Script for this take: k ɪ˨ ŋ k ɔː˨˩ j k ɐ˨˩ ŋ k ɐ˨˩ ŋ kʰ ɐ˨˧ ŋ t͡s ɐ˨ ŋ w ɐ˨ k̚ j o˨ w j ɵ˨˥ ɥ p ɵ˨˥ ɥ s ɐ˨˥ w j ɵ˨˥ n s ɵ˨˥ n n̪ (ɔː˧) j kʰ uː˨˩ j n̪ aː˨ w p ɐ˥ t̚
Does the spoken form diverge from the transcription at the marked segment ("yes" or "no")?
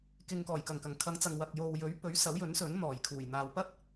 yes